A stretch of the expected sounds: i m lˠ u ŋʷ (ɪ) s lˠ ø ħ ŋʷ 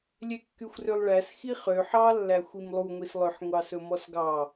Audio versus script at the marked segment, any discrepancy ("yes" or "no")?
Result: yes